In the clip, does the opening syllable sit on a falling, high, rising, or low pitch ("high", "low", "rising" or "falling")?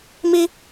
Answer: high